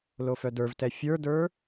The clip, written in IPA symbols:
l o f œ d ə˞ v t ɛ fʲ ə˞ d ə˞

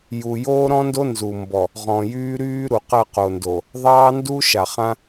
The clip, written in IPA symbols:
j u˨ j oː˦ ɾ ɔ̃˦ n d o˦ n z u˨ m b ɔ˨ | ʁ ɔ̃˨ j yː˦ ɾ yː˦ ɾ u˨ q ɜ˦˨ q o˨ n d o˨ | ðˤ ɑː˦ n d u˦ ʃ a˨ χ ã˦

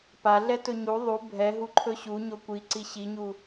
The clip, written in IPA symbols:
p a ɮ ɛ t ɵ ɲ u ðˤ u bʱ ɛ ɦ u ǃʰ ɵ ɕ u ɲ o kʷ i ǀ i ɕ i ɲ u

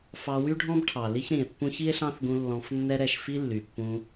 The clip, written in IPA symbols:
f ɑ˧ w y˦ ɖʱ ɔ̃˦ b ʈʰ ɑ˨ l i˦ ç ɾ ĩ˨ e̯ pː ũ˧ ç i˦ e̯ ɬ ɑ̃˦ θ ɡ ũ˧ lː ɔ̃˧ f nː ɛ˦ ɾ ɛ˦˨ ʃ f i˦ lː y˨ pː ũ˧

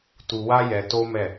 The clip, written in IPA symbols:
t u˧ w a˦ j ɛ˧ t o˦ m ɛ˦˨

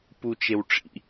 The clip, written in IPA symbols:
p u t͡ʃ e w ʈ͡ʂ ḭ

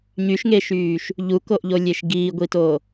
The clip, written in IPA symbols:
ɲ y ʃ ŋ e ʃ yː ʃ | ʎ u k o ʔ ʎ o lʲ e ʃ ɡ iː ɡʷ i t o

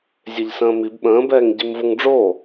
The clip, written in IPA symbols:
zʲ e ʎ s ə̃ː m i b ɓ ə̃ː b ɛː ŋ ɟ i m v o ŋ ɖ͡ʐ o

